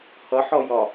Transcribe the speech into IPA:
h ʌ ħ ɔ j ɒ

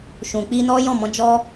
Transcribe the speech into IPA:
ʃ ũ˨ k͡p i˧ n ɔ˦ j ɔ̃˦˨ m ɔ̃˨˦ d͡ʒ ɔ˦

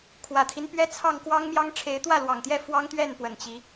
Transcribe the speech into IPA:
kʰ w ä˨˩ t̪ʰ i˦ n p ɥ ɛ˦ t͡sʰ ɑ˥˨ ŋ k w ɑ˦ ŋ m j ɑ˦ ŋ ʈ͡ʂʰ e˨˦ ɪ̯ t̪ w ä˥˨ l w ɑ˨˩ ŋ t̪ j ɛ˥˨ f w ɑ˦ ŋ t̪ ɥ ɛ˥˨ n p w ə˨˩ n t͡ɕ i˨˦

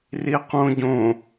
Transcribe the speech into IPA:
r i q õ ɟ õ

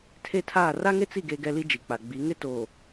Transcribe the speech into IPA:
tʰ e˦ tʰ aː˦˨ r a˦ ŋ e˦ t͡s i˦˨ ɡ eː˦ ɡ ɛ˦ l i˦ d͡ʒ i˨ k͡p a˨ ɡ͡b i˨˦ ŋ ɪ˦ t oː˨

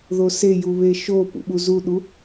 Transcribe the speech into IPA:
ð o s e j u β e ʃ o p ṵ ɓ u z u ɗ u

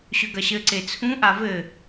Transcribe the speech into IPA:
ɕ ʏ ɡ ɐ ɕ ɘ ǀ e t͡sʰ ũ ʔ a v ɘ

